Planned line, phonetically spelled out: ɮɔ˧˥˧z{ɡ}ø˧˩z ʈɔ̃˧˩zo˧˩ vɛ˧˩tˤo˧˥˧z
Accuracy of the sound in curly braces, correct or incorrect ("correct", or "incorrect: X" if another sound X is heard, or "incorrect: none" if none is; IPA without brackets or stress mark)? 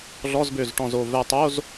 incorrect: b